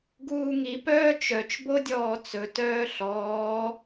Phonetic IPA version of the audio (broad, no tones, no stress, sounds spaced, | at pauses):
ɡ uː ŋ i p œː t͡ʃ œ t͡ʃ b o dʲ ɔː t͡s ɵ t œː ɬ ɔː